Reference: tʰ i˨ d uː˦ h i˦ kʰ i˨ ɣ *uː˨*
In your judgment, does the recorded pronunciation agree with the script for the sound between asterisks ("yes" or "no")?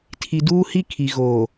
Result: no